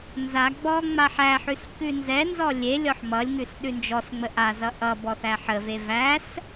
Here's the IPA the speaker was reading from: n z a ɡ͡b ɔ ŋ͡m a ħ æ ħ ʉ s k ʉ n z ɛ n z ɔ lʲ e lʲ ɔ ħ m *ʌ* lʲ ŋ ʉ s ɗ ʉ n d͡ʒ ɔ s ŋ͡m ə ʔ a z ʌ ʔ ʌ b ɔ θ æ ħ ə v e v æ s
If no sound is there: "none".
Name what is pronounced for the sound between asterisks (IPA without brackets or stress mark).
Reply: ʌ